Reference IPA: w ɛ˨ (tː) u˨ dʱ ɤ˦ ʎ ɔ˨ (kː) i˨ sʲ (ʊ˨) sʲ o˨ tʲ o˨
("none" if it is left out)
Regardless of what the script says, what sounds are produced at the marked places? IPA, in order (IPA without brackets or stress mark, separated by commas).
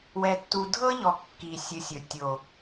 tː, kː, ɯ˨